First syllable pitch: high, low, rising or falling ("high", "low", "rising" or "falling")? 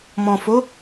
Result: low